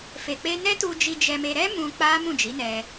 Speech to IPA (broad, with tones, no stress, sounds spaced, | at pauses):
f e˨ k͡p e˧ n ɛ˦ t u˧ d͡ʒ i˧ d͡ʒ ɛ˧ m e˧ ɾ ɛ˦ m ũ˧ k͡p a˦ m ũ˦˨ d͡ʒ i˨˦ n ɛ˧